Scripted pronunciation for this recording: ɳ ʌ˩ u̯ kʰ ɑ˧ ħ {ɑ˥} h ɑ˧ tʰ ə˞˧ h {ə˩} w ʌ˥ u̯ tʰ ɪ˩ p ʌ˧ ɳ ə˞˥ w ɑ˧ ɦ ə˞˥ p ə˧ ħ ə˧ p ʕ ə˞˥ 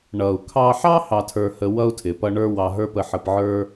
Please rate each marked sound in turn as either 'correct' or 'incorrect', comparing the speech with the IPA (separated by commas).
correct, incorrect